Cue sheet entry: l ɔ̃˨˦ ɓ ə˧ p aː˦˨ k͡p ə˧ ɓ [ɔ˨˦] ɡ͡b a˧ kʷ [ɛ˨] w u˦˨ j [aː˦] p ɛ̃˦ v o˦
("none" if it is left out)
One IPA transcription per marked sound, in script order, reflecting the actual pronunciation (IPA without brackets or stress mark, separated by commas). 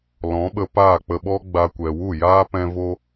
ɔ˦, ɛ˨, aː˦